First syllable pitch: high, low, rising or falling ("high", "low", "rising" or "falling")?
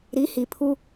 rising